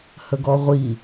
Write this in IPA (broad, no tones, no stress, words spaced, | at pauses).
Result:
həɡɔʁʷi